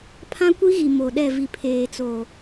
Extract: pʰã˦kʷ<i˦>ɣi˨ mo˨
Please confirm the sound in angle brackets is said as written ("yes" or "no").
yes